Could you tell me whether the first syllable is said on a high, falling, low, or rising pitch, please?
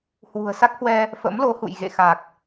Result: low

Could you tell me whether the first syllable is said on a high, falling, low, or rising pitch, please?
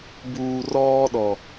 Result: low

